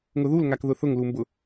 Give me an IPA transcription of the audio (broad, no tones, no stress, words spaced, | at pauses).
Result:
ŋʊðulŋak ðʊθʊŋ lumbʊ